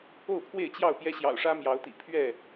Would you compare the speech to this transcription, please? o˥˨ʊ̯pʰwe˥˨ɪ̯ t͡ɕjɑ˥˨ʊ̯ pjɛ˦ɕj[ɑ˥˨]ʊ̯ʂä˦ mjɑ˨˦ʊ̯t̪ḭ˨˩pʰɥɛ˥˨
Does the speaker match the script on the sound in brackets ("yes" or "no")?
no